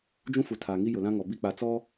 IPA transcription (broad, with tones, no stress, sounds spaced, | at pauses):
d͡ʒ ũ˦ f u˨ tʰ aː˨ ŋ i˦ j ʊ˨ l ã˦ ŋ ɔ˨ b i˦˨ k͡p a˨ t͡s ɔ˦